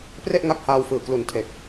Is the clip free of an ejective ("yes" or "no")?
yes